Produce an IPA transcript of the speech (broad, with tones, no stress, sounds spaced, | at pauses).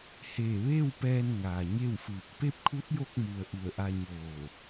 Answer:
h eː˧˩ ʋ eː˥˨ w p ɛː˧ n ŋ aː˩ ɲ e˥˨ w f ɯː˧˩ k̚ p e˥˨ p̚ kʰ u˧˥ t̚ j o˧ k̚ m u˩ ə̯ ʔ u˧˩ ə̯ ʔ a˧ ɲ oː˧˩